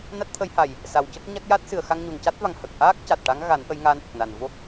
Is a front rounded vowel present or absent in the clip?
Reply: absent